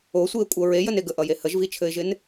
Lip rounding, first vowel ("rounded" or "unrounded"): rounded